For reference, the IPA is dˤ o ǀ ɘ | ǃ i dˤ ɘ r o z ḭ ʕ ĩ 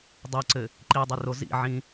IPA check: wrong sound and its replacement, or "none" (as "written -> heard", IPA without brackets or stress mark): none